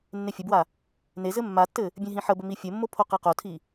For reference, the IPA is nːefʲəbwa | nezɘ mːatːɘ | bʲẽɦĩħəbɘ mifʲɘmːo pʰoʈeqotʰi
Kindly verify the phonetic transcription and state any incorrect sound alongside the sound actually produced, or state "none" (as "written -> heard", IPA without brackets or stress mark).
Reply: ʈ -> q